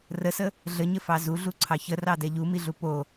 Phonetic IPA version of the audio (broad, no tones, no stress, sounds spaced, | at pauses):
r ə s ə | ɮ ə ɲ ə f ɑ z u ɮ u ǀʰ ɑ ç ə r ɑ d ɛ ʎ u m i ɮ u p o